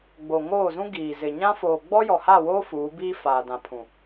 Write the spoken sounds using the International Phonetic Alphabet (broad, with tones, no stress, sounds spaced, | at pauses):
ɡ͡b o˨ ŋ oː˦˨ z ũ˦ ɡ iː˨ z ɪ˨ ɲ ã˦ f oː˨ ɡ͡b ɔ˦ j ɔ˨ h a˦˨ w oː˦ f uː˨˦ b iː˦ f aː˨ d ã˨ pʰ ũ˨